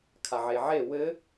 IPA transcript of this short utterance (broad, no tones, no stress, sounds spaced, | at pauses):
kʰ a ʕ e ʕ e w ɘ